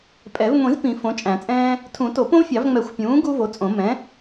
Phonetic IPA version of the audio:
pʼ ɛ˨˩˦ v ŋʷ ĩ˨˩˦ z p ĩ˨˩˦ f õ˩˥ t͡ʃʼ æ̃˨˩˦ t͡sʼ ɛ̃ː˥ | tʰ ũ˨˩˦ t o˨˩˦ p õ˥ v fʲ ɑ˨˩˦ v ŋ͡m ɛ˨˩˦ xʷ pʲ ũː˩˥ ɡ u˥ v o˩˥ t͡sʼ õ˨˩˦ m ɛ̃˩˥

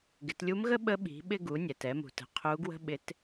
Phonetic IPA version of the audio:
ɡ ɪ˩˧ t lʲ u˧˥ m ɣ ə˥ ɓ ə˧˥ ɓ i̤˩˧ ɓ ɪ˧ ɡ u˩˧ nʲ ɛ˩ t ɛ˩˧ m ṳ˩ t ə̤˩˧ qʰ u˧˥ ɡ w ə̤˥ ɓ ɪ˧˥ t

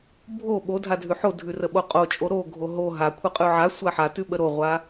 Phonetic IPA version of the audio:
bʱ o ɓ o dʱ a dʱ ʉ ħ o dʱ ʉ r ə ɓ o qʼ o t͡ʃʼ o ɾ o ɡʱ o ɦ o ɦ a kʷʰ ə qʼ ʉ ʕ a sʷ a ħ a t ʉ ɓ ə ɾ o ʁʷ a

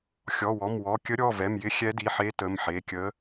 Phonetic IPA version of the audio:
xʲ ɔ˩˧˩ w ɔ˩˧˩ m w ɔ˩˧˩ kʲ ə˧˥ ɾʲ ɔ˩˧˩ v ɛ˩˧˩ m j ɪ˧˥ xʲ ɛ˧˥ d i˩˧˩ ħ e˧˥ t ə˩˧˩ m ħ e˩˧˩ kʲ ə˧˥

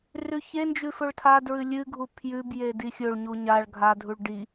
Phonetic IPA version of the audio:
r ʉ ç e n d͡ʒ ʉ f ɵ ɭ tʰ a d ɹ ɨ lʲ ɨ ɡʱ u pʰ j ʉ b j e d i xʲ ɵ ɭ ɲ u ɲ a ɭ ɡʱ a dʱ u ɭ ɖ i

